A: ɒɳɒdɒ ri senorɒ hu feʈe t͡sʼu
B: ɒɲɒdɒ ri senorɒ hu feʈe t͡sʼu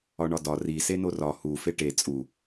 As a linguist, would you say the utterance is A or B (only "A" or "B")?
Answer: A